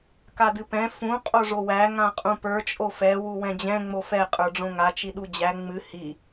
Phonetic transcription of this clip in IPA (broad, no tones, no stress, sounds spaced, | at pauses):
k a d ɨ p ɛ̃ f ũ qʼ o ʐ o w æ ŋ ã qʼ ũ p ə˞ t͡ʃʼ o f ɛ w u w ɛ̃ d͡ʑ ɛ̃ ŋ͡m o f ɛ qʼ ə˞ ɖ͡ʐ õ ŋ a t͡ʃ i ɗ u d͡ʑ æ ŋ͡m ɨ h i